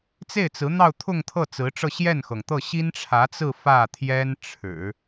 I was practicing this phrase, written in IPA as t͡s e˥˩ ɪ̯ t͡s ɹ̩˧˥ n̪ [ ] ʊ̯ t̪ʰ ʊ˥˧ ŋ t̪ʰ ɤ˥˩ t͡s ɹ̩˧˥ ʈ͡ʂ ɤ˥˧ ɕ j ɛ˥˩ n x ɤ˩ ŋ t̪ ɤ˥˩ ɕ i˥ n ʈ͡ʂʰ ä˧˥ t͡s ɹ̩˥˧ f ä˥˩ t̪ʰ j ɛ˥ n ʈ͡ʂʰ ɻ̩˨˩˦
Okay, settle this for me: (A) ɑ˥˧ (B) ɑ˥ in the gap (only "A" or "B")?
A